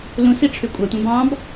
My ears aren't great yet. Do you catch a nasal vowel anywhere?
yes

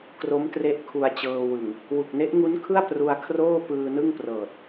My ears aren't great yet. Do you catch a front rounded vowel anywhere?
no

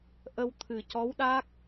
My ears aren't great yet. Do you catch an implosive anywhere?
yes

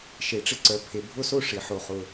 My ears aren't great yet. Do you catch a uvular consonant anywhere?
yes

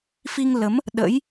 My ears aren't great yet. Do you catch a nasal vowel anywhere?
no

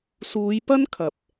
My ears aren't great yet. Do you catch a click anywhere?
no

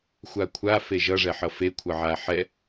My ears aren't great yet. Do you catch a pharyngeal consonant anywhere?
yes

